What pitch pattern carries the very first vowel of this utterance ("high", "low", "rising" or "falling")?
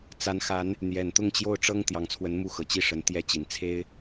rising